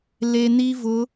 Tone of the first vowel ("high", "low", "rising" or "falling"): low